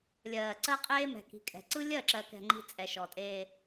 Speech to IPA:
lʲ ɜː˨ ǀ ɜ˦ qʼ eː˦ m ɛ̤˨ k i̤˨ kʼ ɛ̤˨ ǀ ɯ˦ lʲ ɜ˦˨ ǁ ɜ˨ k ɛ̤˨ ŋ͡ǃ i̤˦ t͡sʼ ɛ˨ ʃ ɔ˨ tʼ eː˦

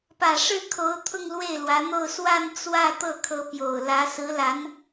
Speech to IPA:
p ä˨˩ ʂ ɻ̩˥˩ kʰ o˧˥ ʊ̯ t̪ʰ ʊ˥˧ ŋ l w e˥˩ ɪ̯ l w ä˧˥ n̪ o˥˧ ʊ̯ s w a˥˧ n t͡s w ä˥˧ t̪ ɤ˥˩ kʰ ɤ˧˥ p j o˨˩ ʊ̯ l ä˧˥ s ɹ̩˧˥ l a˧˥ n

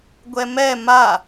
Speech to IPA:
ɡʷ ɛ m ɛ m a

